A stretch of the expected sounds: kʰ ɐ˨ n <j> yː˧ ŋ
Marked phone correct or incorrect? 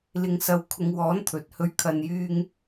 correct